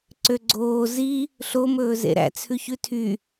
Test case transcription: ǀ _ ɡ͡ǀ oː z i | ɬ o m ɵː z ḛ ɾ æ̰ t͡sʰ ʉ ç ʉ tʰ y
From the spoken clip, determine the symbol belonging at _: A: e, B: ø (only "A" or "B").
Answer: B